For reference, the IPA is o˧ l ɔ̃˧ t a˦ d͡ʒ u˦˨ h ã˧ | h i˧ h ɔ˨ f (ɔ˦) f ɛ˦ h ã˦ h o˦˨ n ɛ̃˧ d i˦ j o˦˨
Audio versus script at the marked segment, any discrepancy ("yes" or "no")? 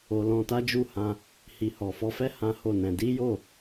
yes